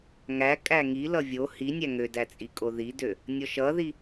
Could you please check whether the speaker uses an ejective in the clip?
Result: yes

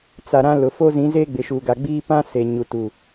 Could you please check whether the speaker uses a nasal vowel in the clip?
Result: yes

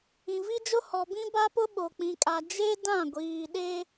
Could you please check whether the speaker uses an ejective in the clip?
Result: yes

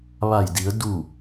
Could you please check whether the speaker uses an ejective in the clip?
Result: no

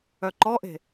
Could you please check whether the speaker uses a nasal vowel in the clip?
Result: no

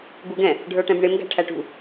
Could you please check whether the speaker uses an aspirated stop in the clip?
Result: yes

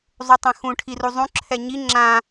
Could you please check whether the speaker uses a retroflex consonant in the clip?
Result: yes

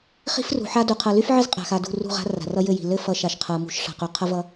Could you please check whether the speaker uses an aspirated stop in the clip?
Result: yes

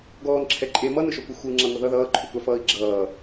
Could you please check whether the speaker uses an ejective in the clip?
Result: yes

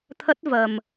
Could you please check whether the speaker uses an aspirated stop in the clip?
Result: yes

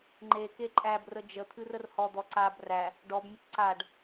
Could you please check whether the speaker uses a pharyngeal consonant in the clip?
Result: no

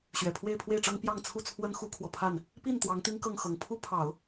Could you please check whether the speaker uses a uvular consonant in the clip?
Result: no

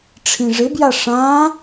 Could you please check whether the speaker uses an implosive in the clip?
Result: no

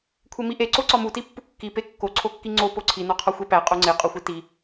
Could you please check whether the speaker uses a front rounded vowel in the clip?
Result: no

